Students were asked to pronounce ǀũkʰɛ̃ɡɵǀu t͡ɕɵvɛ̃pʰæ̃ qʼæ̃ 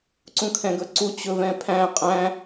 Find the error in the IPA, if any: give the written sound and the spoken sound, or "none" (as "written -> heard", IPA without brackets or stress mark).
none